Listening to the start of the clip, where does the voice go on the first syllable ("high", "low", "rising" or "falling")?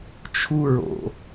high